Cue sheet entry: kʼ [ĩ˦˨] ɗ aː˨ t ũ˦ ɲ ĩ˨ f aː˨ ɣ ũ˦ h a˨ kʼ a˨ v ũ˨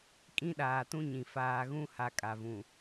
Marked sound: incorrect: ĩ˦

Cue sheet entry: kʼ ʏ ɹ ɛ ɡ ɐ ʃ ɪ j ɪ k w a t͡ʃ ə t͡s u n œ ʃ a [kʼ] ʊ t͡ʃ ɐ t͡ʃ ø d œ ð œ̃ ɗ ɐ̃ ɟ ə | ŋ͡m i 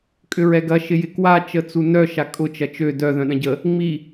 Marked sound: correct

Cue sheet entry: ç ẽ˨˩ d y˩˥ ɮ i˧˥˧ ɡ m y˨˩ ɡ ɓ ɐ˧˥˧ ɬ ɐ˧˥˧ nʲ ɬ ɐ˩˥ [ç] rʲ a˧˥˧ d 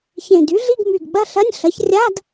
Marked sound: correct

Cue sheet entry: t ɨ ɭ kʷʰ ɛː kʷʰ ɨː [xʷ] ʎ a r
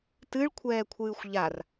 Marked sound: correct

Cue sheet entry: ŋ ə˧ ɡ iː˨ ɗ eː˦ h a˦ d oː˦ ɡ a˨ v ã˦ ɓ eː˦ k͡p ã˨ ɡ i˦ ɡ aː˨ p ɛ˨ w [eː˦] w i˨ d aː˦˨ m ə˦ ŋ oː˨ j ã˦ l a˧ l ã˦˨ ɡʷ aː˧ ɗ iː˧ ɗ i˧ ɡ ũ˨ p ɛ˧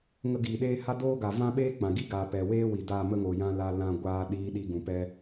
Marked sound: correct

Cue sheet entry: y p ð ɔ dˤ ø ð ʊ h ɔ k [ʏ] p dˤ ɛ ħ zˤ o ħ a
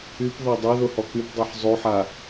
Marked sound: incorrect: y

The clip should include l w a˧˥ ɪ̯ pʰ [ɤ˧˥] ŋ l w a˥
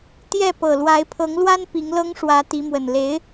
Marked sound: correct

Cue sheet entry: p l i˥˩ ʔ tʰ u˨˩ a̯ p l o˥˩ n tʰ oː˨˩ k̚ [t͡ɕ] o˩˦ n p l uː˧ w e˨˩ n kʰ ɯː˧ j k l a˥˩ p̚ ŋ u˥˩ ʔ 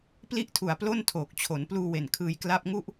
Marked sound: incorrect: t͡ɕʰ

